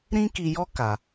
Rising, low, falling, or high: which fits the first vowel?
high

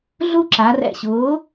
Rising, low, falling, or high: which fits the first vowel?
high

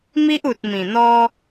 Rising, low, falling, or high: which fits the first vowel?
high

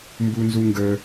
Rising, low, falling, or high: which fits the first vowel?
high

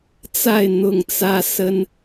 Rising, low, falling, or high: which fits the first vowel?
falling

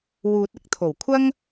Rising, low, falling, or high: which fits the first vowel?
low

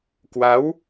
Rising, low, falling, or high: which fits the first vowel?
rising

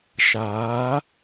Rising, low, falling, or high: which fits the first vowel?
rising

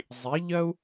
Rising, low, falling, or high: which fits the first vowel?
rising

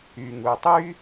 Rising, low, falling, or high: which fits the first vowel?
low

